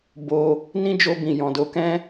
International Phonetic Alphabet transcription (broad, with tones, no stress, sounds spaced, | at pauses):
b o˧ | n ĩ˦ d͡ʒ o˧ b ĩ˨ j ɔ̃˨ d o˨˦ k ɛ̃˦